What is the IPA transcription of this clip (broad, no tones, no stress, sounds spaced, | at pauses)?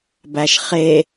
b æ ʃ χ e